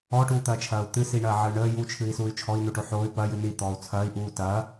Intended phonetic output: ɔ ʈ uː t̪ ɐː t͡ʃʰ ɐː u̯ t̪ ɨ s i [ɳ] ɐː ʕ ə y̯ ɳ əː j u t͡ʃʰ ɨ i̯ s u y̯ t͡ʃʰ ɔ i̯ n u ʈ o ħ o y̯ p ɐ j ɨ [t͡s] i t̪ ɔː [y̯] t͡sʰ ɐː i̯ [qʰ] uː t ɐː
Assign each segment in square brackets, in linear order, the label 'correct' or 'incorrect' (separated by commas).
correct, incorrect, incorrect, incorrect